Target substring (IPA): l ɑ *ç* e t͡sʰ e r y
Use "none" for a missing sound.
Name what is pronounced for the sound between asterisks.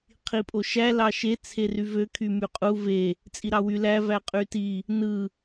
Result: ʃ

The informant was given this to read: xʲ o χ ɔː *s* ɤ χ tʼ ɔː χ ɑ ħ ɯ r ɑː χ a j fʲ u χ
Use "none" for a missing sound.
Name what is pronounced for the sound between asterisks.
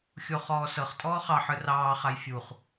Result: s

